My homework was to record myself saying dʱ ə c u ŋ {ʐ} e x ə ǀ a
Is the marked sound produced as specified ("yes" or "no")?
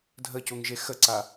no